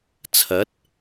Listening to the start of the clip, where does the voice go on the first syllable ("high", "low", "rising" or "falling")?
rising